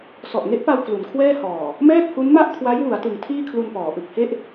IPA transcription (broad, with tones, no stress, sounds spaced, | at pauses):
s ɔ˨˩ ʔ ŋ e˦˥ ʔ p a˧ w k l u˩˦ n kʰ w ɛː˥˩ h ɔː˨˩ | m ɛː˥˩ k̚ h u˦˥ n m a˥˩ ʔ kʰ w a˦˥ j w u˩˦ a̯ t ɯ˩˦ ŋ tʰ iː˥˩ kʰ l u˧ n p ɔː˩˦ ʔ ɯ˨˩ k̚ h e˥˩ ʔ